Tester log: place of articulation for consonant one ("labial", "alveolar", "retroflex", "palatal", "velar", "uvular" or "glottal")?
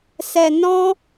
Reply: alveolar